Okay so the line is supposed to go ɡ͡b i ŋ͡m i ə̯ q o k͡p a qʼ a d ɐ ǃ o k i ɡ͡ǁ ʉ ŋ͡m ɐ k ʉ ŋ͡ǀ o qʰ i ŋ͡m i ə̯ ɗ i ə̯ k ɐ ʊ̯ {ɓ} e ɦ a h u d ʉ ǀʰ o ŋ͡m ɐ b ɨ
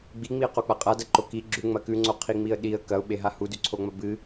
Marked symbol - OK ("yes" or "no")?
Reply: yes